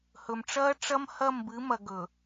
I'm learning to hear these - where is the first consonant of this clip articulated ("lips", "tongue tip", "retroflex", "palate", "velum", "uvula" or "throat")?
throat